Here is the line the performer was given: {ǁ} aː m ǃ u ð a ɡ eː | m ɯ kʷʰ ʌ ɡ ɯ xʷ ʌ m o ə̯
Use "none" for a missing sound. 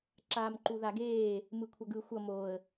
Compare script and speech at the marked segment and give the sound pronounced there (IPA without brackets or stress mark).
ǁ